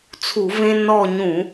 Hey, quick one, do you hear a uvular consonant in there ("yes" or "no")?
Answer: no